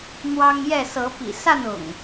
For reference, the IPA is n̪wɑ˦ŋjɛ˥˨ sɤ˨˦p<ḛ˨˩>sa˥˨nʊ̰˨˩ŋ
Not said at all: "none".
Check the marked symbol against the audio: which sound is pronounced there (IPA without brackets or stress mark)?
ḭ˨˩